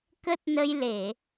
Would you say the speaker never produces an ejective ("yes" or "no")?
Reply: yes